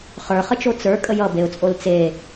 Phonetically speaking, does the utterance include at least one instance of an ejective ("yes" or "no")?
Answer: yes